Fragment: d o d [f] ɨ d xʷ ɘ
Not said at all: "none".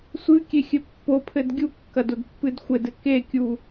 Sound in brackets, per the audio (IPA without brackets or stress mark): pː